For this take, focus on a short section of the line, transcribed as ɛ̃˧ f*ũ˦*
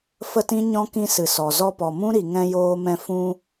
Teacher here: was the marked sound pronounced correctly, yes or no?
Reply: no